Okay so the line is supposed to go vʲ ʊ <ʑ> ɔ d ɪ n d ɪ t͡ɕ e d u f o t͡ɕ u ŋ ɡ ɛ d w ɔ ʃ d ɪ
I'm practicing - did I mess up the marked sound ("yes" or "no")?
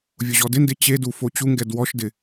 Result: no